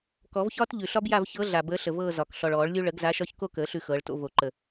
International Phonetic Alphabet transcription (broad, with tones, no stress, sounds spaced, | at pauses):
k ɔ˨˩˦ v ç ɒː˦ t ʎ ʉ˨ ɬ ɒ˦ b j a˦˨ v ç ɤ˨˥ ɮ a˨ b əː˨˥ ɬ ə˨ v ɤː˦˨ z ɒ˨ k ɬ ɔ˨ ɭ ɔː˨˩˦ ɭ lʲ u˦ ɭ ə˨˩˦ ɡ z a˨˥ ʃ ɒ˦ ç k o˦˨ k əː˨˩˦ ɬ ʉ˦ x ɤː˨˥ ɭ t o̰˦ v o˨ ǃ ə˨